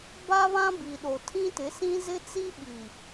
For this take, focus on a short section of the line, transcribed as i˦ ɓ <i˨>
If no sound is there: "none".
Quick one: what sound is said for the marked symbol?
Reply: i˨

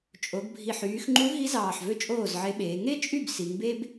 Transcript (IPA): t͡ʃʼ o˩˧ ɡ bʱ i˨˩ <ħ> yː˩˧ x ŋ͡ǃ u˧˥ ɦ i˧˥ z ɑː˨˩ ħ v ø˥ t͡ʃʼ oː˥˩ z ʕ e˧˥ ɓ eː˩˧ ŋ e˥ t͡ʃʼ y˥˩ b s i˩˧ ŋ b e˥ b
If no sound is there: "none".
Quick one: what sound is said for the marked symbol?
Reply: ħ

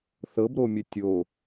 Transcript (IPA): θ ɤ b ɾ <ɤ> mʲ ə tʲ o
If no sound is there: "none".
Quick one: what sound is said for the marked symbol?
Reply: o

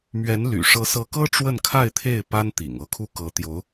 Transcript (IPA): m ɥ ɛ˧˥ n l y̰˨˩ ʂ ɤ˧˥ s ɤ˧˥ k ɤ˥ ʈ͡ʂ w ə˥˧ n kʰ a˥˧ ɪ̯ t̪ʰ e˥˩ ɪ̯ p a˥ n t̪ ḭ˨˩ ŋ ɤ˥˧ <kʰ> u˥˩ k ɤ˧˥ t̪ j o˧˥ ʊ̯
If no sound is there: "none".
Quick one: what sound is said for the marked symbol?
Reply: kʰ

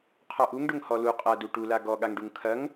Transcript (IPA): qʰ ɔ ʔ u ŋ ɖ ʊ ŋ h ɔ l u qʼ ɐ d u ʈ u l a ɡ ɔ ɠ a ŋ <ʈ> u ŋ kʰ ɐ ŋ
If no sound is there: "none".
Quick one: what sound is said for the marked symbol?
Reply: ɖ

